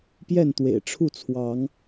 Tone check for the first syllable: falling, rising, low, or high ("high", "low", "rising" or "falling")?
falling